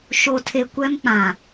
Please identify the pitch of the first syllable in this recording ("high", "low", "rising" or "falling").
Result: low